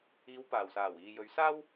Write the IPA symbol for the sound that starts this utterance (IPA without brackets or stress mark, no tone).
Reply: iː